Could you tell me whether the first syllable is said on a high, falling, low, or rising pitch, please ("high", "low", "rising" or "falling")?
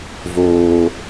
low